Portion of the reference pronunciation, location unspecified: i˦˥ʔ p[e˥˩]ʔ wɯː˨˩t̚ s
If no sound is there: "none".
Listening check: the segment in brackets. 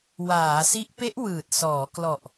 e˦˥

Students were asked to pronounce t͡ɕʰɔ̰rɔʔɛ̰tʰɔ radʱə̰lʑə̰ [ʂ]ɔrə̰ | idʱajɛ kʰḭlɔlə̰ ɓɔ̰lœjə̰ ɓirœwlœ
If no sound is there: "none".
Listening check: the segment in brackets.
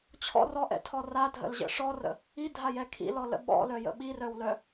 ʂ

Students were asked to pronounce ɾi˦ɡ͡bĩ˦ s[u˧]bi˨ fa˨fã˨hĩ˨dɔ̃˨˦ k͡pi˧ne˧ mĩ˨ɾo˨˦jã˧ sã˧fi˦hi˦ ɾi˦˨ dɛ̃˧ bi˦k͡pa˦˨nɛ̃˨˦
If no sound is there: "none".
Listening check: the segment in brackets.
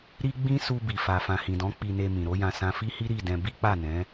u˧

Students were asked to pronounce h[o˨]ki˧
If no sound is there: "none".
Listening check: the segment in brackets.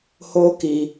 o˦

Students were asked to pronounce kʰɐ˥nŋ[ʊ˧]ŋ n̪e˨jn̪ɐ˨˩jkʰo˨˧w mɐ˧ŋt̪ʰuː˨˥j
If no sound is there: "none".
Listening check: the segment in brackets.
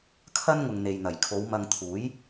ʊ˨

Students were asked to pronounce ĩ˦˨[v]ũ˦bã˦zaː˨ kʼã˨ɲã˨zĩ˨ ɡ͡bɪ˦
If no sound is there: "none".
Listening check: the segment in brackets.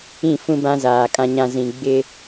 f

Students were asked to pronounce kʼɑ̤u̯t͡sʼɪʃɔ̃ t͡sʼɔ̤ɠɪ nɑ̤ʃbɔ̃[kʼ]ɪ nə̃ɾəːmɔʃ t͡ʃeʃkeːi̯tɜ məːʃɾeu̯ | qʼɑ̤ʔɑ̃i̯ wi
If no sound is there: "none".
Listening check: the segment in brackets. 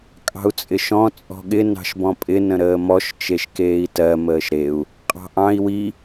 pʼ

